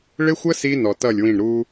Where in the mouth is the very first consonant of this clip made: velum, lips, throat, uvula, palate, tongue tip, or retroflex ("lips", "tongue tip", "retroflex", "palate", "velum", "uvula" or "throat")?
retroflex